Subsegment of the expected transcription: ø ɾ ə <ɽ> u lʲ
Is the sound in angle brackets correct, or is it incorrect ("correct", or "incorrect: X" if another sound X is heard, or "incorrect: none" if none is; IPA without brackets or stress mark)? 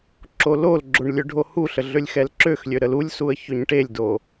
incorrect: l